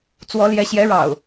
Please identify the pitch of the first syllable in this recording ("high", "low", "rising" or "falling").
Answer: rising